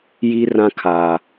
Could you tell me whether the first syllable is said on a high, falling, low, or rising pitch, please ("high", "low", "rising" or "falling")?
high